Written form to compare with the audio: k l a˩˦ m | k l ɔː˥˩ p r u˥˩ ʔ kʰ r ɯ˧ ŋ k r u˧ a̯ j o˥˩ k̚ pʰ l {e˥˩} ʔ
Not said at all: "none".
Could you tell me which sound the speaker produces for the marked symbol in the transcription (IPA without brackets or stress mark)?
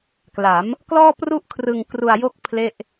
e˥˩